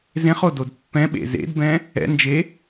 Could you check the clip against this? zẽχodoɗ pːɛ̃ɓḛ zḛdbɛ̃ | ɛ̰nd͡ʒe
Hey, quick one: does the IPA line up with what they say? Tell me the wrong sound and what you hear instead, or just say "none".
ɗ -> d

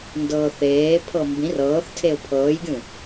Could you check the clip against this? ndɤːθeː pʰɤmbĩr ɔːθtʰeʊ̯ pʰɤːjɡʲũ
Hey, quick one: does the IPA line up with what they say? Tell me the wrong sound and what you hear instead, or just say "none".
ɔː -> ɤː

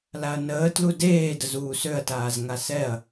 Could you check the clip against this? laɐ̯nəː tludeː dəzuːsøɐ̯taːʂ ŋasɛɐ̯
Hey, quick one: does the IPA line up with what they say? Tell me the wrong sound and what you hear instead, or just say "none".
ʂ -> z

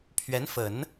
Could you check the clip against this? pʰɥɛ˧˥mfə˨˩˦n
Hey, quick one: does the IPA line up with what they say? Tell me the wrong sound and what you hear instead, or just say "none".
m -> n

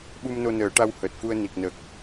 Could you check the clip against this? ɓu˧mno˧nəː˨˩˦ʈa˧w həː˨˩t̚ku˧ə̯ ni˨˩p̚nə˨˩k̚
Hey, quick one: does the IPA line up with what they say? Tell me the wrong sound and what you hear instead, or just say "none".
p̚ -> k̚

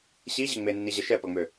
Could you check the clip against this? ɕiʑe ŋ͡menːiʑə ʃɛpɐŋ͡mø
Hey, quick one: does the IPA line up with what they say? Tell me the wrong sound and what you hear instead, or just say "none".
none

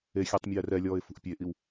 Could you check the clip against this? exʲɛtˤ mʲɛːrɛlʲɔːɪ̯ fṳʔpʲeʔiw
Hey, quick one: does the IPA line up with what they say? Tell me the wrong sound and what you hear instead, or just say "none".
none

